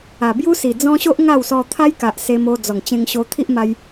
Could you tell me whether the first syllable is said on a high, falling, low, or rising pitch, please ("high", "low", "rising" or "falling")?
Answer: low